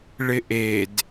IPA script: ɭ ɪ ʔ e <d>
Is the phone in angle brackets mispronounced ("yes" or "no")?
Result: no